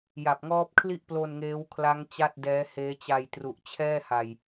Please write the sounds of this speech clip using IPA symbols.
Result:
j a˨˩ p̚ ŋ ɔː˦˥ p̚ kʰ l i˥˩ ʔ p l o˧ n ŋ eː˦˥ w kʰ l a˦˥ ŋ t͡ɕ a˥˩ t̚ d ɛː˦˥ h eː˦˥ t͡ɕ a˧ j t r u˨˩ ʔ t͡ɕʰ ɛː˥˩ h a˨˩ j

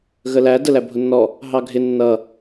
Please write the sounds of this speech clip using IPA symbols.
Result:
ɣ ə l æ d ə l æ bʱ ʊ nː ɔ | ɦ ɑ ɡʱ ɪ nː ʌ

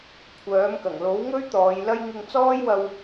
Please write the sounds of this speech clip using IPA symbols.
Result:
kʷʰ œː˨˥ m k ɐ˨˩ ŋ l o˨˥ w ŋ ɵ˥ ɥ t̪ ɔː˨˧ j l ɐ˥ j ŋ ɪ˧ ŋ t͡s ɔː˥ j w ɐ˧ w

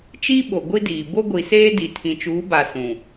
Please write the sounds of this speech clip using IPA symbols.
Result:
t͡ʃ i˦ ɓ o˨ ɡʷ i˦ d iː˨ b o˦ ɡʷ i˨ s eː˦ d i˨ tʰ ĩ˨ t͡ʃ uː˨˦ b a˨ s ũ˨

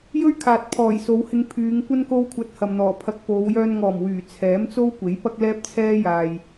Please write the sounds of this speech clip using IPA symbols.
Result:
j ɵ˥ ɥ kʰ aː˨ t̚ pʰ ɔː˨˩ j s o˨˧ w h ɪ˧ ŋ pʰ yː˨˧ ŋ kʷ ɐ˥ n k o˥ w kʷʰ ɐ˧ t̚ h ɐ˨ m n̪ ɔː˨˩ pʰ ɐ˧ k̚ p o˨˧ w j œː˧ n ŋ ɔː˨˩ m w yː˨˩ t͡sʰ ɛː˨˥ m t͡s o˥ w kʷ e˨˥ j p ɐ˥ k̚ l ɛː˥ p̚ t͡sʰ ɛː˥ j aː˨ j

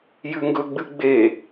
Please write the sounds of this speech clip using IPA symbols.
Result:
j ʉ ŋ ɡ ɵ ɡ͡b ɨ ɡ͡b e

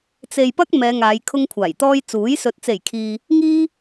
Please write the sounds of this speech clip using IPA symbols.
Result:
t͡s e˨ j p ɐ˧ k̚ m ɛː˨˧ ŋ aː˨˧ j kʰ ʊ˧ ŋ kʷʰ aː˨˩ j t̪ ɔː˧ j t͡s uː˨˥ j s ɵ˧ t̚ t͡s e˨˩ j kʰ iː˨ | ŋ iː˧

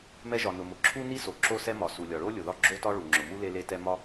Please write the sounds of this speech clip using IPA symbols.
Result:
m ɛ˥ ʒ ɒ˩ n ʊ˩ m ʊ˩ ǁʰ u˥ n i˥ s o˩ ǁ o˥ s ɛ˥ m ɒ˩ s u˩ lʲ ɒ˩ ɭ o˥ lʲ ʊ˩ ð ɒ˥ ɡ͡ǁ o˥ t ɒ˥ ɭ u˩ ŋ͡ǁ ʊ˩ m u˥ l e˥ l e˥ t ɛ˥ m ɒ˥

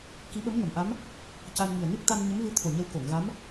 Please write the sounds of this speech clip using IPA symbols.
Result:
k i˧˥ ɓ ə˧˥ m ŋ ə˨˩˨ m ʔ a˧˥ m | c a˧ n ŋ i˨˩ ə̯ n ɨ˦˥ k̚ t̪ a˧ n ɲ ə˧˥ m v ɨ˧˥ t̪ʰ o˨˩ ɲ ə˧ w k o˨˩˨ ŋ ɣ a˧˥ m

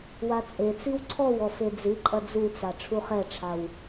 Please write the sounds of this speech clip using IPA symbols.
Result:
w a t͡sʼ e t͡s i w ǀʰ ɔ w ɔ f e d͡z ɨ ǃʼ ɐ d͡z u t͡s a ʈ͡ʂʰ u χ ɛ ʈ͡ʂʰ a w

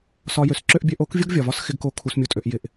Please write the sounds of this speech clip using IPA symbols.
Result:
s ɒ˧ j ø˨ s ǁ ø˦ ʔ bʲ ø˧ ʔ o˨˦ k vʲ o˦ ɡ vʲ ɒ˨ v ɒ˦ s x ɪ˧ ɡ k o˧ kʰ u˧ s mʲ u˧ tʼ ø˧ ʔ j ɪ˧ ʔ

